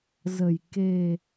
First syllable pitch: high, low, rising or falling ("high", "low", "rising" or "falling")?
low